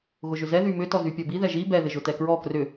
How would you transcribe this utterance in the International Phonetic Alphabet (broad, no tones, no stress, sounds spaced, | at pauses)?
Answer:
ɣ ʊ ʒ ʏ z ɛ ð y m ʏ t ɔ z y pʲ ɔ b i ð ɛ ʒ i b ɛ ð ɪ ʒ ʊ t ɛ k ɹ ɔ k r ʏ